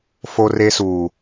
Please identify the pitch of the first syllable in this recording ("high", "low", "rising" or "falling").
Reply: high